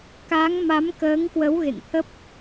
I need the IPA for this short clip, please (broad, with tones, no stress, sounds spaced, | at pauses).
k a˨˦ ŋ m a˨˦ m k əː˨˦ ŋ k w ə˨˦ w ɣ ḛ˧˨ ŋ t̪ʰ ə˦˥ p̚